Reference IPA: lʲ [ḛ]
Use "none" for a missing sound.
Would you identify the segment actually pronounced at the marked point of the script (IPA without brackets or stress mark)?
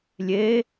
e